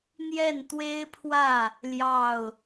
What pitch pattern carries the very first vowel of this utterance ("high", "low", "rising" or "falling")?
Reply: falling